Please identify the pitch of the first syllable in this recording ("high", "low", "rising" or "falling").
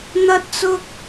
high